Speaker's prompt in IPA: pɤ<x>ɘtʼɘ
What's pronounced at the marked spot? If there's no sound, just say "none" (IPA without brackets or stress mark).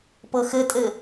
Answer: x